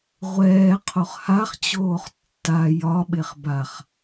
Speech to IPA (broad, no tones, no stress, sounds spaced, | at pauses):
ʁʷ ɛː qʰ o χ h a χ t͡ɕ oː χ tː a j ɒ ɓ e χ b a χ